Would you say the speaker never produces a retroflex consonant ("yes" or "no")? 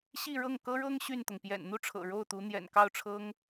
no